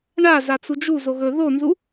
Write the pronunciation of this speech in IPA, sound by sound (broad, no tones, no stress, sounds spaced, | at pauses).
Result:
ɳ a z a t͡s u d͡ʒ u z o ɣ ɵ ð o n z u